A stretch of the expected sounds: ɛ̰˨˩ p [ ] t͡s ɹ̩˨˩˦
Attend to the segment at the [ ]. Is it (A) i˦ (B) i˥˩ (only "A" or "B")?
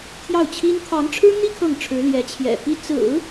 B